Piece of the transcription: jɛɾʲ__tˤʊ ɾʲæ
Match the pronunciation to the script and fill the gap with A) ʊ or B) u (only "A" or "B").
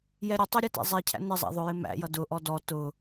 A